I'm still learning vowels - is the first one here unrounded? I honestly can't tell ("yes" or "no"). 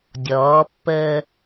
no